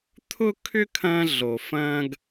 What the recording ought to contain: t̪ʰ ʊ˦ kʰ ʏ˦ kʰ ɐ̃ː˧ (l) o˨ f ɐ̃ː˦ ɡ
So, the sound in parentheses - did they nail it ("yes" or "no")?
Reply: no